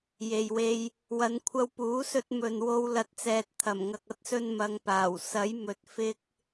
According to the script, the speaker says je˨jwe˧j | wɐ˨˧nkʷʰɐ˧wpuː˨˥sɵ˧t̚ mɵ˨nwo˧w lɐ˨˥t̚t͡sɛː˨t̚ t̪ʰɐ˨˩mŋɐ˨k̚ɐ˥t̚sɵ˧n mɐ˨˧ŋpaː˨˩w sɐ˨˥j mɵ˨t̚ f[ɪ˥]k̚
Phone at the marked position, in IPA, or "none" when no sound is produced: ɪ˧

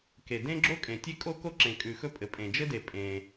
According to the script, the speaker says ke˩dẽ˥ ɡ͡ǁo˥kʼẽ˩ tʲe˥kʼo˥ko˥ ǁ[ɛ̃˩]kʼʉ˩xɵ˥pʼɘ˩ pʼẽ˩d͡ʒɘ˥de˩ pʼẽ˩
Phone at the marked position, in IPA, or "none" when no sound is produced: ẽ˩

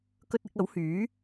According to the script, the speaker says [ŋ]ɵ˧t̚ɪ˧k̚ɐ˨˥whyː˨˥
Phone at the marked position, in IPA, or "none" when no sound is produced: k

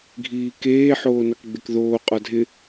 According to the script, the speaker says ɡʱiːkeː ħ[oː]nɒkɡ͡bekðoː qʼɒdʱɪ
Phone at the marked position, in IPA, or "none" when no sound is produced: oː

